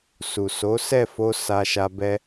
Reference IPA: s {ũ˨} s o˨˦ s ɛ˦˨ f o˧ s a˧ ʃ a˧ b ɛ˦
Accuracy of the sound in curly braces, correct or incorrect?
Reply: incorrect: u˨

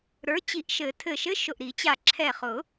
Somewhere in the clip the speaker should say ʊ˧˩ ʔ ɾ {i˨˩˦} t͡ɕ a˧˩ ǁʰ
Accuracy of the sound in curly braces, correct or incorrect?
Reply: correct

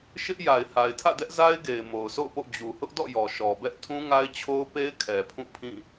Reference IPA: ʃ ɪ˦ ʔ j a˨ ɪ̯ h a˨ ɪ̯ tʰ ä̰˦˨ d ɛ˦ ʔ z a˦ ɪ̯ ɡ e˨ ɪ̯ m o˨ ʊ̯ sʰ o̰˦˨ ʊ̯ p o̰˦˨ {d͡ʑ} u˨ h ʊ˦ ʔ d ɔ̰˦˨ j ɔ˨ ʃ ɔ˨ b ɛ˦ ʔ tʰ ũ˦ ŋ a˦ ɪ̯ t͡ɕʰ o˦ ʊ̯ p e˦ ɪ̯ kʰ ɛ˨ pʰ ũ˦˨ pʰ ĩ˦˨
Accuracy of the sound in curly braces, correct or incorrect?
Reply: correct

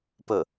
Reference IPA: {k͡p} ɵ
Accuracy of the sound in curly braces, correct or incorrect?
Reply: incorrect: p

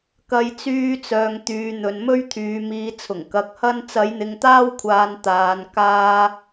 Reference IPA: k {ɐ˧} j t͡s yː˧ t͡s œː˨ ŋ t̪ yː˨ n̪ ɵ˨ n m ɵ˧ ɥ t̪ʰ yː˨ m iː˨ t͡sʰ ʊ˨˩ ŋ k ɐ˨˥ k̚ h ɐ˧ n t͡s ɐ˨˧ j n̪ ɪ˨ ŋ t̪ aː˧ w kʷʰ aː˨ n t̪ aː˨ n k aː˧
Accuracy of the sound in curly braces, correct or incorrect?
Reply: correct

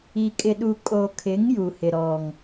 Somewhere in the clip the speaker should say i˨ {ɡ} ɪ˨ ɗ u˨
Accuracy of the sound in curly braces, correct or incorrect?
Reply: incorrect: kʼ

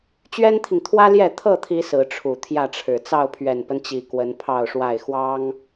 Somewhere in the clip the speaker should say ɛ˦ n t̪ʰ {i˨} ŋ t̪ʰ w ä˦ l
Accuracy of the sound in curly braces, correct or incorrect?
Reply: correct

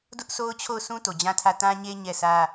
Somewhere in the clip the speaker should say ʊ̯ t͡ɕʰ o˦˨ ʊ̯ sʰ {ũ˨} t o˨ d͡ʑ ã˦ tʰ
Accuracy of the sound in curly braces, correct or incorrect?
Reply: incorrect: ũ˦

